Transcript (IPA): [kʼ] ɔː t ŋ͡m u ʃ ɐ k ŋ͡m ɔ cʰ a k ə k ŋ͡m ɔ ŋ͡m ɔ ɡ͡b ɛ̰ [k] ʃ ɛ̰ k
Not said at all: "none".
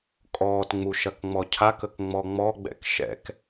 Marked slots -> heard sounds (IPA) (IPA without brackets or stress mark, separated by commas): kʼ, k